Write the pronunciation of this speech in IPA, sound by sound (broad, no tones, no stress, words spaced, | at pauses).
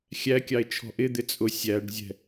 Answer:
xʲækʲɑe̯ t͡ʃʰɔ̤ʔɪd̪ɪ t͡sʼʊ sʲæɖzʲɛ̤